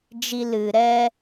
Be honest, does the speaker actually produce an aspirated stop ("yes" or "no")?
no